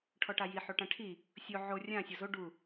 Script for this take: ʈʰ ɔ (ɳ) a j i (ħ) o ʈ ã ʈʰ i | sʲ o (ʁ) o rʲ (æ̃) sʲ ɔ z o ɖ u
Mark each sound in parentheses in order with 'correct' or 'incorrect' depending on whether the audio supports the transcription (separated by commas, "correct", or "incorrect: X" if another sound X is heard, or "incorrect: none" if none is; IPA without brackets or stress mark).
incorrect: ʈ, correct, incorrect: ʕ, incorrect: ã